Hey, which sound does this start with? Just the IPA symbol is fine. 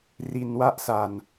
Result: r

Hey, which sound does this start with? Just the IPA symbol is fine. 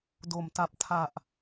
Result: d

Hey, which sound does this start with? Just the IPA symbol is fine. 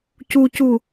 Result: c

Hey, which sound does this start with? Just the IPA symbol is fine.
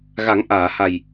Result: ɣ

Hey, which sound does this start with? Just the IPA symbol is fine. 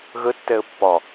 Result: ɣ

